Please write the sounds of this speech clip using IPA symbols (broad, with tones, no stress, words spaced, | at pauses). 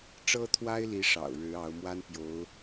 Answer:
ʈ͡ʂɤ˥t̪ʰwa˥ɪ̯li˧˥ ʂɑ̰˨˩ʊ̯ ɻɻ̩˧˥ɑ˧˥ʊ̯ mwa˥n pjo˧˥ʊ̯